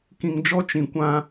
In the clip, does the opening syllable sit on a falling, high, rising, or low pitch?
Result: low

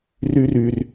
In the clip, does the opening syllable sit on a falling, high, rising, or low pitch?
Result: high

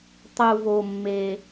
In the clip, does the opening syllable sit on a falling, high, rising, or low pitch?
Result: low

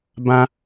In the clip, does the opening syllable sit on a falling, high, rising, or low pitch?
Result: high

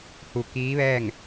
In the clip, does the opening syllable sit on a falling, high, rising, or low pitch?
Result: low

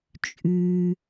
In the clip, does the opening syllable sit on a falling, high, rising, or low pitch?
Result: low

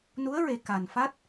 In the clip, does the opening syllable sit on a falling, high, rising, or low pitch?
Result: rising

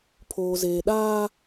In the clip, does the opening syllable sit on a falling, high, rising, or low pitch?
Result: low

